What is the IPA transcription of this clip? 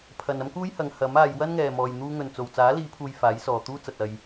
pʰ ɐ˨ n ɐ˥ m k uː˥ j h ɐ˨˧ ŋ h ɐ˨˥ m aː˨˧ j w ɐ˥ n ŋ ɛː˨ m ɔː˨ j n̪ uː˧ ŋ ɵ˨ n t͡s o˨ w t͡s aː˨˥ l iː˨˧ pʰ uː˨ j f aː˨˥ j s ɔː˨ t̪ uː˥ t͡s ɐ˨ t̚ ɐ˨ j

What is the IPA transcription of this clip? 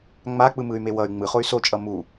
ŋ͡m a k͡p ɯ m ɯ y̯ m e w ʌ y̯ ŋ͡m ɯ χ o y̯ s o t͡ʃʼ ʌ m u

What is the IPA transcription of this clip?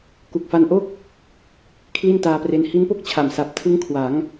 k u˨˩ k̚ f a˧ n ʔ o˥˩ k̚ | kʰ l i˥˩ n t aː˧ p r e˧ n h i˦˥ n p o˥˩ k̚ t͡ɕʰ a˨˩ m s a˨˩ p̚ tʰ ɯ˦˥ ŋ kʰ w a˩˦ ŋ

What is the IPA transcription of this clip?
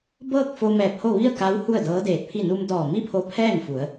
b ɤː˥˨ k̚ f o˧ m ɛː˧˩ p̚ h o˥˨ ʋ i˥˨ ə̯ k a˧˥ w h u˥˨ ə̯ d ɤː˧˥ d eː˧˩ t̚ pʰ i˥˨ n u˧ m d ɔː˧˩ m i˥˨ pʰ o˧ pʰ ɛː˥˨ ŋ f u˩˧ ə̯

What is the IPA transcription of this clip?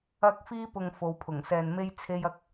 ɐ˥ k̚ f iː˥ p ʊ˧ ŋ f o˨˧ w pʰ ʊ˨˩ ŋ s ɛː˧ n m e˥ j t͡sʰ e˥ j ɐ˥ k̚

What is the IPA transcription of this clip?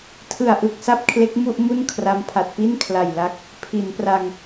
tʰ ɯ˨˩ a̯ ʔ ɯ˨˩ k̚ s a˥˩ p̚ kʰ l e˦˥ k̚ m u˥˩ ʔ m u˥˩ n kʰ r a˦˥ m pʰ a˨˩ t̚ p i˥˩ n kʰ l a˨˩ j l a˦˥ k̚ | pʰ i˩˦ n p r a˧ ŋ

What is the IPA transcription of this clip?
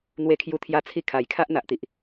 n̪ w e˧ kʰ j u˧ t̪ʰ j a˧ t͡sʰ i˧ kʰ a˨˩ j kʰ a˦ ʔ n̪ a˨ ʔ t̪ i˨ ʔ

